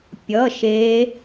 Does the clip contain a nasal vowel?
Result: no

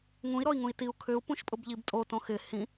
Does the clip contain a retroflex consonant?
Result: no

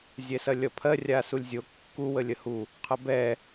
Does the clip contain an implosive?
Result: no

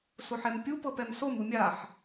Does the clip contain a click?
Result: no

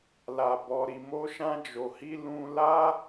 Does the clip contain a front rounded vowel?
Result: no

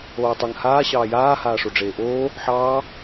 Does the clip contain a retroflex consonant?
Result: yes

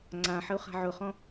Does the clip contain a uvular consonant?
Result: yes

